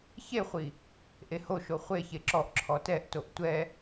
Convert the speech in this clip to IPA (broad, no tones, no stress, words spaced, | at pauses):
çeχʷi | ʔehoʃo χʷeçe ǁɔʔ ǁʰɔtɛʔtoʔ tʷɛ